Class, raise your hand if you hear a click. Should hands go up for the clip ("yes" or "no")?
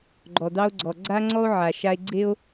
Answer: yes